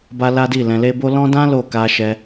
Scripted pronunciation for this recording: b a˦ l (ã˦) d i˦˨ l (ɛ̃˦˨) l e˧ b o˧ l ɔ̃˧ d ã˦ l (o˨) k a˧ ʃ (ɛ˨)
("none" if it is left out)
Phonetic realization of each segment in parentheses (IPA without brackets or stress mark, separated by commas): a˦, ɛ̃˧, o˦˨, ɛ˧